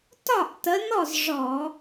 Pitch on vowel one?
falling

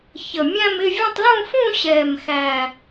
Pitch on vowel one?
low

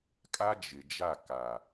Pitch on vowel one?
high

